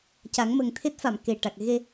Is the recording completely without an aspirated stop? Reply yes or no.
no